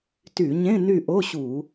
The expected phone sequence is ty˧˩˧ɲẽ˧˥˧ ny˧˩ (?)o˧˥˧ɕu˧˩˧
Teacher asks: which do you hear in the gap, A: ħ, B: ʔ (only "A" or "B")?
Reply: B